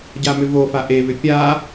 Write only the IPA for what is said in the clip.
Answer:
ɟamʏvofa ʔeβʏ pʲa

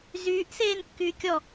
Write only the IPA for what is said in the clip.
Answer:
zyːʔseːn kːyːkʲɔ

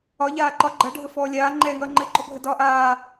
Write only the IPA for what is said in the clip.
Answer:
ɒ ʎaːǃɒ ɡ͡ǃʌ ɖʱəfɔːlʲaː ŋ͡ǃɛːŋʌːŋ͡ǃɘ ɡ͡ǃɔbʱədɒːʔaː

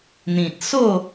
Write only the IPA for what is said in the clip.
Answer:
n̪ĩ˨t̚so˥˧

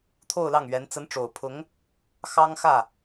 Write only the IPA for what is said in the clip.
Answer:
t̪ʰo˥˧ʊ̯lɑ˥˩ŋɥɛ˧˥n t͡sə˧˥nʈ͡ʂo˨˩ʊ̯pʰʊ˧˥ŋ | xɑ˥ŋxä˥˩

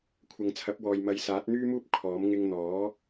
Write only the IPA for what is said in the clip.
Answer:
kʷʰɐ˨ŋt͡sʰɐ˨˥p̚wɔː˨j mɐ˨˧jsaː˨˥t̚n̪yː˥muː˥p̚ kʰɔː˨˥m ŋɪ˧ŋn̪ɔː˨˥

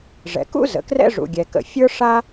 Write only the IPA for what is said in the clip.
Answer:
ʐɛ̰˩ kṵ˥ zə̰˩ krɛ̰˥ʐṵ˩ɡʲɛ˩kə̰˩ fʲə˞˥ʂa˥

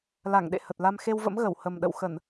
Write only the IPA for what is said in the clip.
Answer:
la˧˩ŋɗḛ˧˨ hə˨˩t̚la˧m xe˧wvə̰˧˥mɣə˧˩w hə˨˩mɗə̰˧˨w xə˧˩˨n

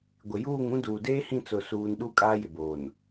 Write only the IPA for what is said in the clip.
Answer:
ɡʷɪ˨juː˦˨ŋũ˦ duː˨deː˦hĩ˦˨ t͡sʊ˦˨suː˦n ɗu˦ kʼaː˦jɪ˨boː˨n

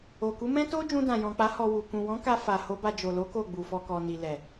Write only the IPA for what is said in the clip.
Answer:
o˨ku˨˦mɛ̃˦ to˦ d͡ʒũ˧dã˨jɔ̃˨k͡pa˨˦ hɔ˧wu˨ kũ˨wɔ̃˨˦ka˧ fa˨ ho˨˦ba˧ d͡ʒo˨lo˨˦ ko˦˨ɡ͡bu˨ fɔ˨kɔ˨ ni˨lɛ˨

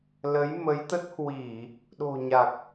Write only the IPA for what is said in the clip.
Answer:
lə˨˦jmə˨˦jt̪ə˦˥t̚hwi˧˩˨ | ɗo̤˨˩ɲa˨˩k̚

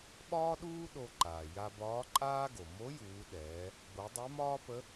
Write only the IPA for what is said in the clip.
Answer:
ɓɒː˥ɗuː˥ ɗo˧ ǃaː˩ ja˧bɒː˧˥ǃʼaː˥ɡo˩ mo˧˥juː˩˧ ɗɛː˩˧ | ɡ͡bo˩˧ dˤɛ˧˥mɒː˥pə˧˥

